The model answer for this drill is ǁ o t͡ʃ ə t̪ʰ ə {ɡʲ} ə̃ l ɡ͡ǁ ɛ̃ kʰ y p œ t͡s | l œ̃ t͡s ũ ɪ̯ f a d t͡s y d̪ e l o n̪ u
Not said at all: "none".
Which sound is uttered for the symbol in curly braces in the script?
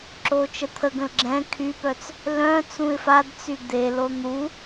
ɡ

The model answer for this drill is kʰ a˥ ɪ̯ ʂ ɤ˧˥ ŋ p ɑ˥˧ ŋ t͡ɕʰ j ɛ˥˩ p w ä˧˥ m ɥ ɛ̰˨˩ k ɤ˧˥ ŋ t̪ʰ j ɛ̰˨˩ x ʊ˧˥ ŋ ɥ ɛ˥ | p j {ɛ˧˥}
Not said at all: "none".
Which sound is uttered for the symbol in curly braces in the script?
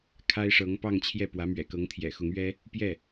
ɛ˥˩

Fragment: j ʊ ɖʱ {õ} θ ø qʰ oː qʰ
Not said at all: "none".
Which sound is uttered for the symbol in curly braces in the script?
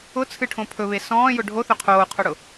o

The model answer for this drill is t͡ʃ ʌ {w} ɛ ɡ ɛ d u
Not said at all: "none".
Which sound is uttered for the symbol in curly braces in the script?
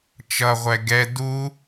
ʁʷ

